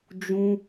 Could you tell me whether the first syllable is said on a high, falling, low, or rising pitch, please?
high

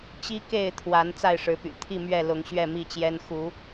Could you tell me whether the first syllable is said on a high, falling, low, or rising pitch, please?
high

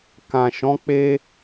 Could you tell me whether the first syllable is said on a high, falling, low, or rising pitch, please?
low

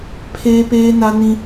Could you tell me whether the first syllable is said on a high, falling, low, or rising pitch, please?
high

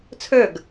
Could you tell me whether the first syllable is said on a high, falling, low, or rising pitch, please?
falling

